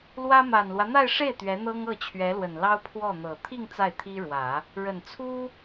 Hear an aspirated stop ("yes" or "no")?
yes